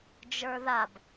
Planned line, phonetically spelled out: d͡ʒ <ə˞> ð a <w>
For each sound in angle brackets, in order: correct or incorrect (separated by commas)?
correct, incorrect